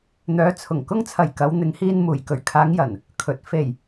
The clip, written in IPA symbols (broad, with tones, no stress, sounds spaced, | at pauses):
n̪ œː˨˧ t͡sʰ ʊ˨˩ ŋ k ʊ˧ ŋ t͡sʰ ɐ˨˩ j k ɐ˨˧ w n̪ ɪ˨˧ ŋ h iː˧ n m uː˨˩ j k ɵ˨˩ ɥ kʰ aː˨˧ ŋ j ɐ˨˩ n | kʰ ɵ˨ t̚ f e˨˩ j